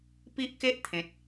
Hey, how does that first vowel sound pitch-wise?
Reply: high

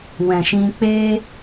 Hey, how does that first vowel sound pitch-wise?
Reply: low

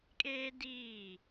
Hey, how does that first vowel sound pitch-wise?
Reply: high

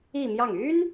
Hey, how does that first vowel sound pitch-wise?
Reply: falling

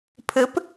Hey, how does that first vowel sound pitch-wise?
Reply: rising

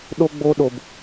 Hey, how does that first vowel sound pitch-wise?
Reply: high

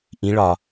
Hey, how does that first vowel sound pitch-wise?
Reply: rising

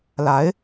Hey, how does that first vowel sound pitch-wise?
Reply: rising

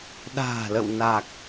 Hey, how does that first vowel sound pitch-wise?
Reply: low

